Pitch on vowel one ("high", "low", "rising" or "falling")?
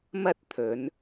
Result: high